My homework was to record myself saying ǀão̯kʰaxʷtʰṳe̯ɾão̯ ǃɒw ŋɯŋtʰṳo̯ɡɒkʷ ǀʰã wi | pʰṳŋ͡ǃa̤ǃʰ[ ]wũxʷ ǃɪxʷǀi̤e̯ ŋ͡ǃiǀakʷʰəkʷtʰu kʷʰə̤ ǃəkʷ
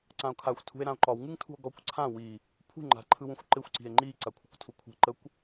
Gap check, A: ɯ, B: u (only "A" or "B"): A